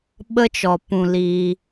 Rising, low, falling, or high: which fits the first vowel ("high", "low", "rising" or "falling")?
high